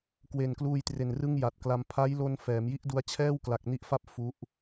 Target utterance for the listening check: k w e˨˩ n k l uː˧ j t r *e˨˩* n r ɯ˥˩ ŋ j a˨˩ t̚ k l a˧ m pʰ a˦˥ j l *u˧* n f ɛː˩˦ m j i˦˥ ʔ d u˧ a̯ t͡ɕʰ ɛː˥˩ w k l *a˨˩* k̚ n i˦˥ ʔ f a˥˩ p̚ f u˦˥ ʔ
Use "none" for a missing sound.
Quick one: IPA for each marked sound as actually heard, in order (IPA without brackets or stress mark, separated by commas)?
e˨˩, o˧, a˨˩